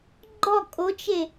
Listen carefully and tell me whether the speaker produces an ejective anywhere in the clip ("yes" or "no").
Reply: yes